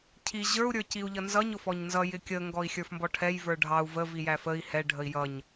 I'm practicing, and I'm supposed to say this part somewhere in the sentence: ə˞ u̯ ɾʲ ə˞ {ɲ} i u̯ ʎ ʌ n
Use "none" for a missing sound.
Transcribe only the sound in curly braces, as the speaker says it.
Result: c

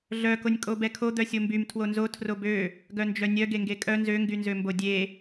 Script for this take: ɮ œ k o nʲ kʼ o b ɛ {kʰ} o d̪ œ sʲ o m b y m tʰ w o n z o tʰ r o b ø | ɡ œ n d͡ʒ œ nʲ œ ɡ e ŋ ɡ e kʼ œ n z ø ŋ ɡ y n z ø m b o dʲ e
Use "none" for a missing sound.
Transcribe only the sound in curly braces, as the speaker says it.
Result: kʰ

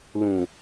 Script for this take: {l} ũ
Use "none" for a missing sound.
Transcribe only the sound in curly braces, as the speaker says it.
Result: l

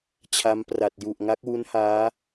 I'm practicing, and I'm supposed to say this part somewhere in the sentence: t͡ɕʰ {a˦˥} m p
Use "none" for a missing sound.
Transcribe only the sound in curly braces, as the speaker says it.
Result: a˦˥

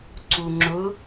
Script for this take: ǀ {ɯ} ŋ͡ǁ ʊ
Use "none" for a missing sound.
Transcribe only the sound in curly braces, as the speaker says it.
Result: u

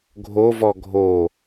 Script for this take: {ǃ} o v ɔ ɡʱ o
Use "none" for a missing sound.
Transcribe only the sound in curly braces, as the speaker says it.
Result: ɡʱ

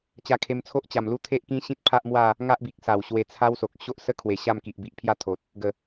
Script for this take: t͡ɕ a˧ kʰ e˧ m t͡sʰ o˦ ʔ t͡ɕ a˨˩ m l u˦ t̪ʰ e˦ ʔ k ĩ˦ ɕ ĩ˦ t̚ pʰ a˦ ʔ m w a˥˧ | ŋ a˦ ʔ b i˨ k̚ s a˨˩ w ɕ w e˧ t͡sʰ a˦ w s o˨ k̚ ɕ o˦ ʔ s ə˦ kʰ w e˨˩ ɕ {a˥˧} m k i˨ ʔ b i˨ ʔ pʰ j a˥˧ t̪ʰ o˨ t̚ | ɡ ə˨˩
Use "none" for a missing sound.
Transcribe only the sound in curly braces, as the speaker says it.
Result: a˥˧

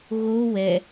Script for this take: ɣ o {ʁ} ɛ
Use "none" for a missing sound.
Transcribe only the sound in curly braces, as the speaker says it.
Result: w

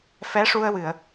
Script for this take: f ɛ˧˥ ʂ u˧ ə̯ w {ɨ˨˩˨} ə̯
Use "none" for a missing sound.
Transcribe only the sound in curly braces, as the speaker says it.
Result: ɨ˨˩˨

